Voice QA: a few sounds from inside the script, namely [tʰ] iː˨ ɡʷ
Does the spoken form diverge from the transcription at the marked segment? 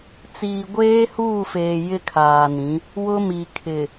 yes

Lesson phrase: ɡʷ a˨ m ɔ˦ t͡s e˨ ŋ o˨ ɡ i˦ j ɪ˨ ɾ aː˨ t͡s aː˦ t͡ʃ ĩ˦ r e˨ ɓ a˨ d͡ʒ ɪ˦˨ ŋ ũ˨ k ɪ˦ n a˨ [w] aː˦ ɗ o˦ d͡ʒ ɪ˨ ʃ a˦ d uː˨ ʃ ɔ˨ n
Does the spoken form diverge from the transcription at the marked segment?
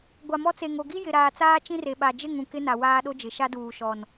no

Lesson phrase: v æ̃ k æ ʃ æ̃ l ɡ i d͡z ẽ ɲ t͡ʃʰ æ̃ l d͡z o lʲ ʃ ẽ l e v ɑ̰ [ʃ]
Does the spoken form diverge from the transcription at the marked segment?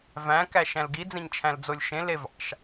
no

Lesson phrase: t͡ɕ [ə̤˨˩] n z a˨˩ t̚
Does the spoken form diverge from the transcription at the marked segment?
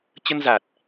yes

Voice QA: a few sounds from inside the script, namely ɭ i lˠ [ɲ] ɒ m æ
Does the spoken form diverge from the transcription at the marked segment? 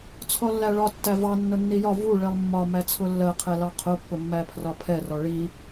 yes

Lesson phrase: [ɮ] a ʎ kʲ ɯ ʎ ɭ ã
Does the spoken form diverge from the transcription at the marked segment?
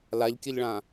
yes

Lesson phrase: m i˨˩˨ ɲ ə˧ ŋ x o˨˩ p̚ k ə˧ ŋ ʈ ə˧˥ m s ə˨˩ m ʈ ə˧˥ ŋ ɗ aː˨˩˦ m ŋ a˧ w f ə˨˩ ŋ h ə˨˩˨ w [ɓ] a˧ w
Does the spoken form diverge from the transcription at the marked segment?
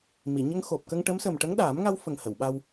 no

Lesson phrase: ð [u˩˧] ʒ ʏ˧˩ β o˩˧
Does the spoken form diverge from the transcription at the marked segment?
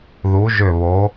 no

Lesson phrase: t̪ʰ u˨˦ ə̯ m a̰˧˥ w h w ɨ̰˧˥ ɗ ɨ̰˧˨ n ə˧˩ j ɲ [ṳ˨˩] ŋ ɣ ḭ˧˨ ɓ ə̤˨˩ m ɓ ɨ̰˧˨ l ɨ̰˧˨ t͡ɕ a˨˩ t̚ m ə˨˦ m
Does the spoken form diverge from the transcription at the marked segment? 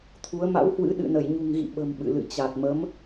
no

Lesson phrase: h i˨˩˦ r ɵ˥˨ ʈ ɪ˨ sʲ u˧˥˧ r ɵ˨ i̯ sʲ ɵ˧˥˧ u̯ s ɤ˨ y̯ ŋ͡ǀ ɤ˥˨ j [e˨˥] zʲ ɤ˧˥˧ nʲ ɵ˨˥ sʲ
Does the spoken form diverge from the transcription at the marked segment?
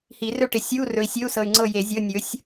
yes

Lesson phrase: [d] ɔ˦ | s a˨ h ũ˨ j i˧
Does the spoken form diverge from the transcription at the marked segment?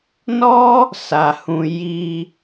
yes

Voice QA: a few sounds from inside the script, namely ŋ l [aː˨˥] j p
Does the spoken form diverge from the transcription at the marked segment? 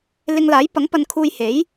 no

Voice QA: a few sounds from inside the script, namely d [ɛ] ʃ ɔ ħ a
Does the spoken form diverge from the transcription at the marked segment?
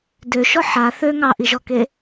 yes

